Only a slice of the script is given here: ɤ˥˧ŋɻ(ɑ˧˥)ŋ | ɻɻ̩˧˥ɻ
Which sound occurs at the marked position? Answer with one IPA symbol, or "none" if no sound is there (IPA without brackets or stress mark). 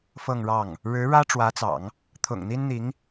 ɑ˥˩